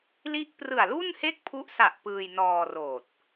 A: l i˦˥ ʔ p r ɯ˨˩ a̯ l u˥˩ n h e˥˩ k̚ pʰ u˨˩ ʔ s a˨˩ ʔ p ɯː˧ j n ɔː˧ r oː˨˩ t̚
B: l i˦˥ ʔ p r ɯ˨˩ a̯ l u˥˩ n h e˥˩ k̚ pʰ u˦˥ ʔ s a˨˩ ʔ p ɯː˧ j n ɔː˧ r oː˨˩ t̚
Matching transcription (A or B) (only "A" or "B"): B